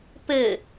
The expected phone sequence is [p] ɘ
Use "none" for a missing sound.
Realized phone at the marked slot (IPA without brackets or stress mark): p